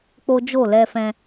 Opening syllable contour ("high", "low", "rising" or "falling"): high